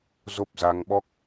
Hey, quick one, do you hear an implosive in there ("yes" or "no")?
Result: yes